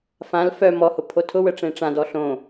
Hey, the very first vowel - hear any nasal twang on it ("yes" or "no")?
yes